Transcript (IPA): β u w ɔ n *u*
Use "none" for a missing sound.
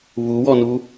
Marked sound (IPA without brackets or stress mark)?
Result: u